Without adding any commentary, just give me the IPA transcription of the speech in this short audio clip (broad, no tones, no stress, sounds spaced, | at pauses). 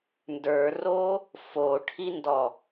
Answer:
n d ə˞ r o | f o ʈʰ i n d ɔ